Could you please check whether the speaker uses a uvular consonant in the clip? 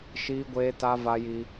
no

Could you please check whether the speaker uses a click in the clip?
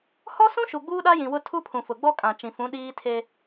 no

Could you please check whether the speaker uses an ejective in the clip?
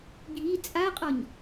yes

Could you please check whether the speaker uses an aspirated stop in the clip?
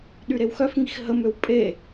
no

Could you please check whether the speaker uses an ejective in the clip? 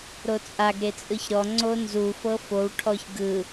yes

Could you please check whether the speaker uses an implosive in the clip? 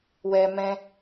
no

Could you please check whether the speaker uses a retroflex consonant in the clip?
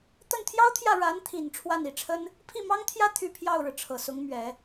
yes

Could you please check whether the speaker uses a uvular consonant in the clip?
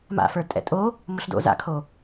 no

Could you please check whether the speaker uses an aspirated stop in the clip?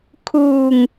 yes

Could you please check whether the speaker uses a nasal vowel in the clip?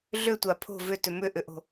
no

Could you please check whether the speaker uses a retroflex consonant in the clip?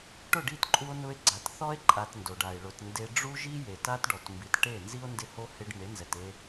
yes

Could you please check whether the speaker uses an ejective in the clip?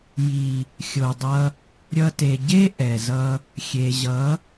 no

